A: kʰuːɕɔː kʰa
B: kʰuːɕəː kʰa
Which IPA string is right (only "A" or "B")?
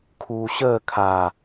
B